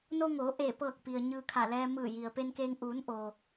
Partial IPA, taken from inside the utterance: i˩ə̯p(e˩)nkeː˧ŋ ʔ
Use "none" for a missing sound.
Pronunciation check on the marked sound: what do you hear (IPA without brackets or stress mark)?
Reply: e˧